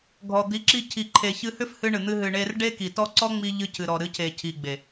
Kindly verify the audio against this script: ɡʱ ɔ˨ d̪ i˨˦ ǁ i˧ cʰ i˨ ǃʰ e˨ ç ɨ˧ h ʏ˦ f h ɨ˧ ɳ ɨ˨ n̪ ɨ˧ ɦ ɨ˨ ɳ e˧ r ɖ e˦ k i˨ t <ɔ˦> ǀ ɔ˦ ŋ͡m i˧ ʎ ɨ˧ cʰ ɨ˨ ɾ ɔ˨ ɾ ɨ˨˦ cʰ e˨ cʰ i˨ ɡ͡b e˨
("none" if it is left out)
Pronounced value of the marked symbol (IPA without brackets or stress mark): ɔ˦